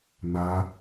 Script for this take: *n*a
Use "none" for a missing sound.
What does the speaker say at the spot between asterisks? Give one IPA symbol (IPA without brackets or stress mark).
n